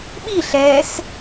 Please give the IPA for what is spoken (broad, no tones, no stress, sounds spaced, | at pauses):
ɓ i ɬ ɛ s